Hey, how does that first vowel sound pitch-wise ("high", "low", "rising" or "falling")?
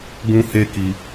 high